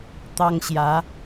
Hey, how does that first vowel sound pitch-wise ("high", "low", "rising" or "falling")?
high